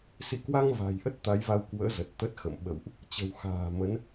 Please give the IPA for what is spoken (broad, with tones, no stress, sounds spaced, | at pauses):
s ḭ˧˨ k w a˧ ŋ v a̤˨˩ j ʔ ə˦˥ t̚ t̪ a˨˦ j v a˧ w k w ə̰ː˧˥ z ə˨˩ t̚ t̪ ə˦˥ t̚ x ə̰˧˨ m ɓ ə̰˧˨ w ʔ | t͡ɕ ə̤˨˩ w x a̤ː˨˩ m ə˨˦ n